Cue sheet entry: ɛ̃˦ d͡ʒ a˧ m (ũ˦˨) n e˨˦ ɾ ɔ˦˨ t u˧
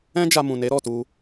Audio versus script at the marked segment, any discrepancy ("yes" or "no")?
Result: yes